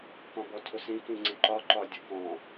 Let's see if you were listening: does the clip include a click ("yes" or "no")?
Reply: yes